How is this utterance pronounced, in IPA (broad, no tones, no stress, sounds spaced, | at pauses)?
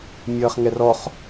mʲ ʌː χ ŋ ɛ r ɔ χ